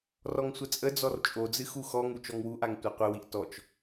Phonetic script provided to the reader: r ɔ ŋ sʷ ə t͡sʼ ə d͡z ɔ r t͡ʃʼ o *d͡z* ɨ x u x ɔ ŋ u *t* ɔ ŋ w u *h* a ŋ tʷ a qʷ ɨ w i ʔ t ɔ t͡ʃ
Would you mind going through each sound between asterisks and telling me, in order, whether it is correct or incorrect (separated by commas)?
correct, incorrect, incorrect